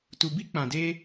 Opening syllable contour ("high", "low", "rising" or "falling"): low